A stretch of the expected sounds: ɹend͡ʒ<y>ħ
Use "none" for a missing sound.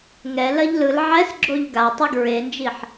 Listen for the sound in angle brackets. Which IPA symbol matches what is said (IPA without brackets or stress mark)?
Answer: i